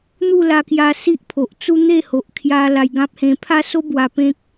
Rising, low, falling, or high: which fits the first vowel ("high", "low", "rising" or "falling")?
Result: falling